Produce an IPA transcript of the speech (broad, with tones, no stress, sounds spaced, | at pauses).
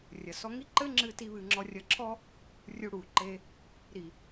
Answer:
rʲ ɐ˨ s ɔ˧ ŋ i˦ ǃ ɘ˦ ŋ͡ǁ ɨ˧ t i˧ β ɨ˧ ŋ͡ǁ ɔ˧ rʲ ɐ˧ ǁʰ ɔ˦ | rʲ u˧ ɽ u˨ ǃ e˧ | ɾ i˨